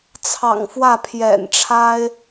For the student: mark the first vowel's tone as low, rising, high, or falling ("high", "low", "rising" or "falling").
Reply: low